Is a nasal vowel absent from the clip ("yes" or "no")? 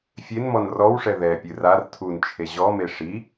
yes